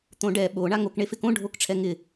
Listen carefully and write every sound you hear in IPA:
t̪ õ ɖ ɛ ɓ o ɳ a ŋ o k ɳ e f ɪ k õ ɖʱ o k ʈ͡ʂʰ ɛ ŋ ɪ

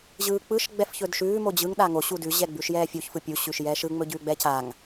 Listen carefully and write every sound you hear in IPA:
ʑ ɯː k͡p ɯ ʃ ɡ͡b ɛ f ç ɵ d ʃ ʉː m o d͡ʑ ɯ ŋ ɗ a ŋ o ɕ u d ʉ ʑ ɛ ɡ͡b ʉ ʃ j ɛː fʲ u ç f ɯ pʲ u ɕ ʉ ʃ j ɛː ʃ ɯ ŋ͡m ɵ ɟ ʉː ɡ͡b ɛ c a ŋ

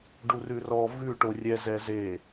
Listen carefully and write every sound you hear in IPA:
ɖ u r ʉ r ɔ v ʉ ʈ o rʲ ɛ z ɛ z e

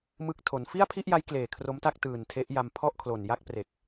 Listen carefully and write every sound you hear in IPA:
m ɯ˦˥ k̚ tʰ o˩˦ n f i˥˩ a̯ pʰ i˥˩ ʔ j a˦˥ j k l eː˨˩ kʰ r o˦˥ m t a˥˩ k̚ t ɯː˨˩ n tʰ e˦˥ ʔ j a˧ m pʰ ɔ˥˩ ʔ kʰ l o˨˩ n j a˥˩ k̚ p r e˨˩ k̚

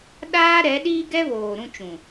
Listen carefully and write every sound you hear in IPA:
ɗ aː˦ ɾ ɛ˨˦ ɗ iː˦ ɡ ɛ˦ β oː˨ ɾ ũ˦ t͡ʃ ũ˨

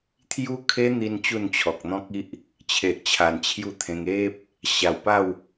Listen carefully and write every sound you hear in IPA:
t̪ʰ j u˦ kʰ e˦ n̪ i˧ n t͡ɕ u˥˧ n t͡ɕʰ ɔ˨ k̚ n̪ ɔ̃˦ k̚ i˦ ʔ | t͡ɕʰ e˨ ʔ t͡ɕʰ a˨˩ n t͡ɕʰ j u˥˧ t̪ʰ ẽ˧ ŋ e˦ p̚ | ɕ a˨˩ w p a˥˧ w

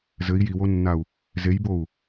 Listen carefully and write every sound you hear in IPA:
z ɘ i̯ j i w o nː a u̯ | z e j b o u̯

